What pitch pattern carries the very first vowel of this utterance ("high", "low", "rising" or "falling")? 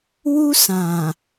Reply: high